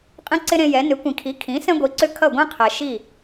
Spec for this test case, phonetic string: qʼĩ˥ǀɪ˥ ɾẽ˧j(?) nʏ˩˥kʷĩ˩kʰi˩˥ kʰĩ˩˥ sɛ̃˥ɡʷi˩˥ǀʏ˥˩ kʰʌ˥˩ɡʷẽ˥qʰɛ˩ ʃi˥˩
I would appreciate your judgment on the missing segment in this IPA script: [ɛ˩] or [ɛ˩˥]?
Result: ɛ˩˥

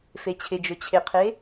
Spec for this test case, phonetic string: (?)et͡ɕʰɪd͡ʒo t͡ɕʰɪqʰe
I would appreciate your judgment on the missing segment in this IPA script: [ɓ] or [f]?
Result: f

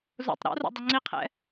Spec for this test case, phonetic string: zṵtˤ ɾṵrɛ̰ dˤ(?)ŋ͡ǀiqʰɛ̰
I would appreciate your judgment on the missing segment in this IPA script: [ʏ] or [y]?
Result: ʏ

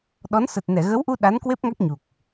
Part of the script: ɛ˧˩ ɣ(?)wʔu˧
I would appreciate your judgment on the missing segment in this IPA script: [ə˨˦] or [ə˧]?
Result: ə˨˦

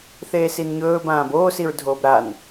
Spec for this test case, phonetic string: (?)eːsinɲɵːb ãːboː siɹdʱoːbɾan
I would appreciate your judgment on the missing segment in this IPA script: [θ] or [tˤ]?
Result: θ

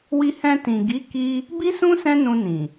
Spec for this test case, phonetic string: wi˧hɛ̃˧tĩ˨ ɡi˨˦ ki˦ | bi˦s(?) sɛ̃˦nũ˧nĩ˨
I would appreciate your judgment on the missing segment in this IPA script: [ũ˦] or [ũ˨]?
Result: ũ˦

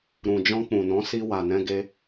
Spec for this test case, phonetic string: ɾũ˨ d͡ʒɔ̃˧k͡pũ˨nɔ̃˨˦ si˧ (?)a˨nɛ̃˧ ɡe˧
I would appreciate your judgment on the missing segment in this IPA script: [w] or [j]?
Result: w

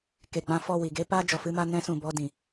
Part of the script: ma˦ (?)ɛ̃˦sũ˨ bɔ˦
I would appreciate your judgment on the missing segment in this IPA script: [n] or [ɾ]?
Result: n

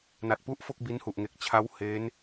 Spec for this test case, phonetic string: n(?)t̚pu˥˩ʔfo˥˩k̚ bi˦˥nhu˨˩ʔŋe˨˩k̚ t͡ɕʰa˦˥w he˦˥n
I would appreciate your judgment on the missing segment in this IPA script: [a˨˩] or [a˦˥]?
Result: a˨˩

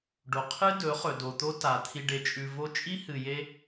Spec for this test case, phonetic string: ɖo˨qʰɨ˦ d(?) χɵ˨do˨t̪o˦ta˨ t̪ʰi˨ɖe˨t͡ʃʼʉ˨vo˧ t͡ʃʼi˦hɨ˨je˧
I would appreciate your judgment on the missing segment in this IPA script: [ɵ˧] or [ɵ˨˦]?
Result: ɵ˨˦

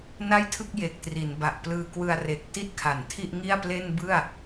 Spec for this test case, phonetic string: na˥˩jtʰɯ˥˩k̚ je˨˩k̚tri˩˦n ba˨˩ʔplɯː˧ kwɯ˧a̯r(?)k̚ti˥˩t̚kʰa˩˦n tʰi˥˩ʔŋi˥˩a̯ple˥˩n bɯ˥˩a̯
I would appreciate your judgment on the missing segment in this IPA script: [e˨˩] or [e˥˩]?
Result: e˨˩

